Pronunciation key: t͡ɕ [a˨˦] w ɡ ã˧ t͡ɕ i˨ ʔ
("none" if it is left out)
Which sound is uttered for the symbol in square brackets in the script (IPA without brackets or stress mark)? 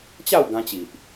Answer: a˥˧